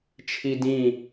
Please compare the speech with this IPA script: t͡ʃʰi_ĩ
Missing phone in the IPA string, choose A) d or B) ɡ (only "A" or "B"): A